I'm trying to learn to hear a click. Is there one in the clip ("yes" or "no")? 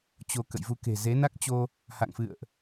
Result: no